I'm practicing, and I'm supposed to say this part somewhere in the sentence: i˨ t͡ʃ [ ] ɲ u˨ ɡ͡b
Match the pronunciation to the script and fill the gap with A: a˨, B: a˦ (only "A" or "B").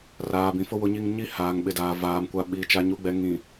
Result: A